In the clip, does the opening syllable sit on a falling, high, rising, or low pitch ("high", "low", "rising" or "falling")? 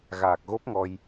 low